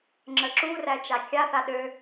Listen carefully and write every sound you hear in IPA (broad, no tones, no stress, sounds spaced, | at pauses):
ŋ͡ǁ ə ǁ u r æ t͡ʃ a kʲ a θ a ɗ ø